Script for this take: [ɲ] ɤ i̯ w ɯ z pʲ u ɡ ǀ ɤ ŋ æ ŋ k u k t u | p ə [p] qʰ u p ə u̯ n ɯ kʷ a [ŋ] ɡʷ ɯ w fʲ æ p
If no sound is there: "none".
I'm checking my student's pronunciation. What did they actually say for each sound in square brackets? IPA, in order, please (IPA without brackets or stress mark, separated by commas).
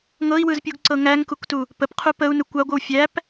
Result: ŋ, p, none